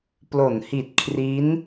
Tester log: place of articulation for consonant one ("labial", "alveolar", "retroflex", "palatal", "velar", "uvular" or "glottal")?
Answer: labial